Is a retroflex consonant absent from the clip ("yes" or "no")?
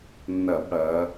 no